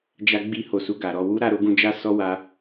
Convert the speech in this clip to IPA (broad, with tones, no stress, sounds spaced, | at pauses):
d͡ʒ a˧ ɡ͡b i˧ h o˨ s u˧ ɡ a˨ ɾ ɔ˧ w u˦ ɾ a˧ ɾ o˧ ɡ ũ˧ d͡ʒ a˦ s ɔ˦ w a˧